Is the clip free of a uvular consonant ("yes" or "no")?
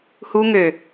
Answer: yes